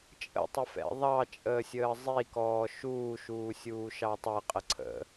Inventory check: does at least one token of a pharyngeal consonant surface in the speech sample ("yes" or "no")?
no